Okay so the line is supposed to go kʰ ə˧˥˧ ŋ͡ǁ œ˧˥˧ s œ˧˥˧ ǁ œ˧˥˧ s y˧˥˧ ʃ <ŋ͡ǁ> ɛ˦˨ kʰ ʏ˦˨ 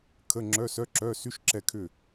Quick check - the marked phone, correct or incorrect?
incorrect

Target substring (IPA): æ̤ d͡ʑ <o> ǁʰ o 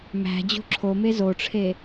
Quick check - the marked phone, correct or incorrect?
incorrect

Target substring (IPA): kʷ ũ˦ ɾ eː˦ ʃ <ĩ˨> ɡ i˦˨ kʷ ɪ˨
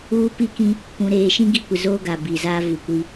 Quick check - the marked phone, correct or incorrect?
incorrect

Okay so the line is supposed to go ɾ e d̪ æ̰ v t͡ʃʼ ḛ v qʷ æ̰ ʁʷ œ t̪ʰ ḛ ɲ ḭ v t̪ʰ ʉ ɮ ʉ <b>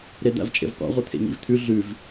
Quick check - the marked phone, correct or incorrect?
incorrect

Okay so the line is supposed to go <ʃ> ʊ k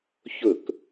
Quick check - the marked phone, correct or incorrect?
incorrect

